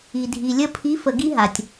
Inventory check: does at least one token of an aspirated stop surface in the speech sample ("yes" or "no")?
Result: yes